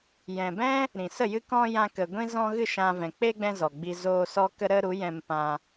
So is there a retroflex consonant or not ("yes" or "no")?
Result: no